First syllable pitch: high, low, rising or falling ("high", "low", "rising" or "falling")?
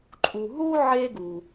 low